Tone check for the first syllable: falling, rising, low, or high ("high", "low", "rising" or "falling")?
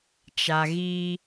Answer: low